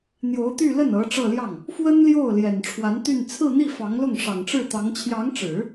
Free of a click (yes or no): yes